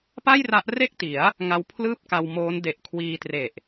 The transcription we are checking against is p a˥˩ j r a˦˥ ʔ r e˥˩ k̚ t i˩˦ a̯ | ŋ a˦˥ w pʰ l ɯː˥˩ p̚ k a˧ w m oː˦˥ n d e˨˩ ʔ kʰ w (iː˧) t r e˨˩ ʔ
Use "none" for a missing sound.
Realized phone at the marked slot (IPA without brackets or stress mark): iː˧